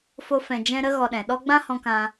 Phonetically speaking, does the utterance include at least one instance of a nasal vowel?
yes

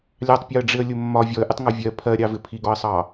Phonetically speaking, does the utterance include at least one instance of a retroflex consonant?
yes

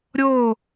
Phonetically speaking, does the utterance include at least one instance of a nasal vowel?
no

